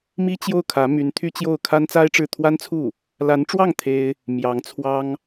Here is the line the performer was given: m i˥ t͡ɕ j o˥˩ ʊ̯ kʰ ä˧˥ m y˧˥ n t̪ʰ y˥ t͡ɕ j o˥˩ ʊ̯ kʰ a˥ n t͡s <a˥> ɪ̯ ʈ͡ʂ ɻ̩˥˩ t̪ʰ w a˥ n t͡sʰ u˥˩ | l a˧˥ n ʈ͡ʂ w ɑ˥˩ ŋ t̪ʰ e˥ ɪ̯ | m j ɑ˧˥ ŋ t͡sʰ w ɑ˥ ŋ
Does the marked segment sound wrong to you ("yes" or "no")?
no